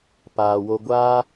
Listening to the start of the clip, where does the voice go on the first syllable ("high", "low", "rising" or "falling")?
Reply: low